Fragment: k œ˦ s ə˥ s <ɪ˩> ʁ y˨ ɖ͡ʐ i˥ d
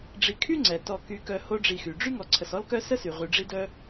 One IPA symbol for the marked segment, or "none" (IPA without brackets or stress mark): y˩